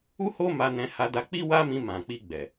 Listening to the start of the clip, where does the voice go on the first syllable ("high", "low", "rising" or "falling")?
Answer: high